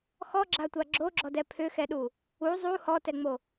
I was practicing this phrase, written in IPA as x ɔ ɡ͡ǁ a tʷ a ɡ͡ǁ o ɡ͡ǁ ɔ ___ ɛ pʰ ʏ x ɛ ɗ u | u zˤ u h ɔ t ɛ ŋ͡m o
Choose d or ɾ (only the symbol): d